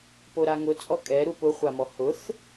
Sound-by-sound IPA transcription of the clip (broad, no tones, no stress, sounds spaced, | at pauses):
p o ɾ a ŋ ʊ t͡sʼ ɔ kʼ ɛ ɾ u p ʊ χʷ a m ɔ h ʊ θ